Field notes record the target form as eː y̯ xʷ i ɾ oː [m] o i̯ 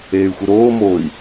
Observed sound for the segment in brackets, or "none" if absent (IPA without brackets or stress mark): m